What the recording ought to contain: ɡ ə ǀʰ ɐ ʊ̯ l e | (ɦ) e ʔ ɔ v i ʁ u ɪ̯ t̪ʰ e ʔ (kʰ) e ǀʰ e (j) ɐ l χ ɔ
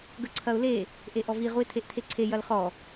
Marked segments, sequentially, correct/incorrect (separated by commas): incorrect, incorrect, correct